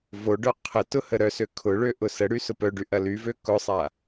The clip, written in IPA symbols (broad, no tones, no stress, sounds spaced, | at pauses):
v o ɖ œ qʰ ə t ʊ h ə ɾ œ s ø kʰ ʊ ɭ ø ʔ ʊ s ə ɽ y s ʊ p œ ɖ y ʔ ɐ l y v ø k ʊ sˤ a